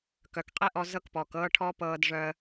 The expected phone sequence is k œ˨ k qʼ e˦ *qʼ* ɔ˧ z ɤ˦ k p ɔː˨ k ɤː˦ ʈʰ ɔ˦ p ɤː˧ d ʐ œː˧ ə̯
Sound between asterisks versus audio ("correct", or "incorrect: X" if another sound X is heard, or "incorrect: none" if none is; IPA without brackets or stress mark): incorrect: ʔ